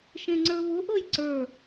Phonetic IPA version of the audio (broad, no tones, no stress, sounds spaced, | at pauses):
ʃ ẽ ŋ͡ǀ ə˞ β ʊ ʔ ɤ j ǀ ə˞